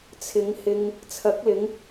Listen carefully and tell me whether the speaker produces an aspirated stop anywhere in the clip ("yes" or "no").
yes